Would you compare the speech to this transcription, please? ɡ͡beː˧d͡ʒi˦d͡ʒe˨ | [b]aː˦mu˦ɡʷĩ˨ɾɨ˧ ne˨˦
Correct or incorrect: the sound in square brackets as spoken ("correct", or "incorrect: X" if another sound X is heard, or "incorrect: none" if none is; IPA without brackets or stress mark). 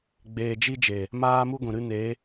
incorrect: m